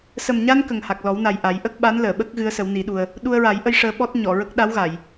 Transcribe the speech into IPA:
s ə˨˩ m ɲ a˧ n k ə˨˩ ŋ h a˨˩ k̚ l ɔ˨˩˦ w n a˨˩ j ʔ a˨˩˦ j ʔ ə˦˥ k̚ ɓ a˧˥ n l əː˨˩˨ ɓ ə˦˥ k̚ ɣ ɨ˧˥ ə̯ s ə˨˩˦ w n i˨˩˦ ɗ u˧ ə̯ | ɗ u˧ ə̯ ɹ a˨˩˦ j ʔ ə˧ j ʂ əː˧ ɓ ɔ˦˥ t̚ ɲ ɔ˨˩˨ ɹ ə˦˥ k̚ ɗ a˧˥ w ɣ a˨˩˨ j

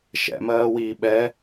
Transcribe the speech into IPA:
ʃ ɛ̰ m ɜː w iː ɓ ɛ

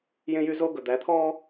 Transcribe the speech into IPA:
j ẽ˦ j y˦ z o˦ ɡ ɵ˨ d̪ æ˨˦ t̪ʰ ɔː˦

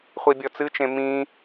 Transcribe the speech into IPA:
χʷ i bʲ ɔ t͡s ɨ t͡ʃ ẽ m ĩ

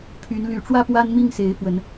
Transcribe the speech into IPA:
pʰ y˨˦ n l y˨˩ ʈ͡ʂ w ä˥˨ p w a˦ n m i˥˨ ŋ s e˨˦ ɪ̯ f w ə˨˦ n

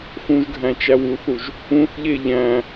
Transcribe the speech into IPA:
x ũ ʒ ɡʱ æ̃ t͡ʃ æ w u θ u ʒ | ũ θ ʎ e ʎ æ̃

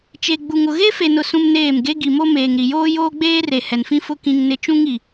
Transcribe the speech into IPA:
t͡ʃ e˨ ɡ͡b u˨ ŋ ʊ˨ ɣ e˦ f e˨ n ʊ˨ s ũ˦ m n eː˦˨ m ɡ e˦ ɡ i˨ m o˦ m eː˨ ŋ ɾ i˨ j oː˦ j oː˦ ɡ͡b eː˦ r e˨ h ɛ˨ n f ĩ˦ f ʊ˦ k ĩ˦ ŋ n ɪ˦ t͡ʃ ũ˦ ŋ i˨

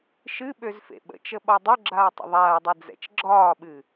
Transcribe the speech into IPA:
ʃ ɨ ɓ ø z f ḛ ɓ ə̰ t͡ʃ ə ɓ ɒ dˤ ø ɡ͡ǁ aː tˤ ə̰ ðˤ aː dˤ e d͡z ɛ̰ t͡ʃ ɡ͡ǁ ɒː ɓ ɨ

